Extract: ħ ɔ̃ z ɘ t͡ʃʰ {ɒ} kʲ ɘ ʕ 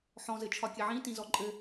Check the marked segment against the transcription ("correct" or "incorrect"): correct